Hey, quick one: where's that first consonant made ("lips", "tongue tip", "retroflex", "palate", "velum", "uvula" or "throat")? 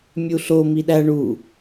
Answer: lips